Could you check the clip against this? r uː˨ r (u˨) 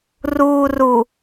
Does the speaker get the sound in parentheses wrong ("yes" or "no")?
no